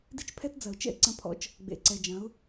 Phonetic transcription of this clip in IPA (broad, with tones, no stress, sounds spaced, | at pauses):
d i˦ t͡ʃ pʰ ɛ˦ t d͡z ɐ˨ ʊ̯ t͡ʃ ɛ̰˦ ɪ̯ ǀ ɐ̃˧ pʰ ɔ̰˧ t͡ʃ | ɡ͡b ḛ˨ ǀ ɛ˨ d͡ʒ ɐ̃˨˦ ʊ̯